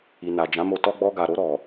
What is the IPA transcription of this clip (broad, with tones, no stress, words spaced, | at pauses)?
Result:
i˨na˨d͡ʒã˨˦mo˧ tɔ˦ɡ͡bɔ˦ɡa˧ ɾo˧ɾɔ˨